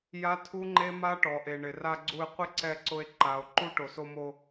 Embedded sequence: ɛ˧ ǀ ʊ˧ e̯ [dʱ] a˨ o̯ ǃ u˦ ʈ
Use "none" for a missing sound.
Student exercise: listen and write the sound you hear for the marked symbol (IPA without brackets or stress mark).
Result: ǃ